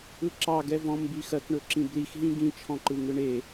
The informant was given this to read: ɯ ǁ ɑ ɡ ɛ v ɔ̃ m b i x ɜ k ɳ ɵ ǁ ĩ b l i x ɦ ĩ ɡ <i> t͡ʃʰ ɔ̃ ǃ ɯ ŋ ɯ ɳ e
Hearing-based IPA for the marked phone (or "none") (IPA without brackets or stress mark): ĩ